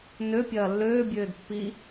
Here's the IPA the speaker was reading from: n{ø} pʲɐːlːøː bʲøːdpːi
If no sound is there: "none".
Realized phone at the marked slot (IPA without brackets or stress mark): ø